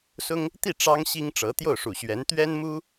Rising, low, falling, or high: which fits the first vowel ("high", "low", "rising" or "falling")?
high